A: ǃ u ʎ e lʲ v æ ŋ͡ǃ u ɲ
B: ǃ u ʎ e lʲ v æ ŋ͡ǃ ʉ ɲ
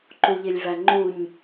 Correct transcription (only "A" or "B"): A